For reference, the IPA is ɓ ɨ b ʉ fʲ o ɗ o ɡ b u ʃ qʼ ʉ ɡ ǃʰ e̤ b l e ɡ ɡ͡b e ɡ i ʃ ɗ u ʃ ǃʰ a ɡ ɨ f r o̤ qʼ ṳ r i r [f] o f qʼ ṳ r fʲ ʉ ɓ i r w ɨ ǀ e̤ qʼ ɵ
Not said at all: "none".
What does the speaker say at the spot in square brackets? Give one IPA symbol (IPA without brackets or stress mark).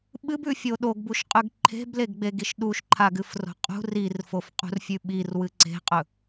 f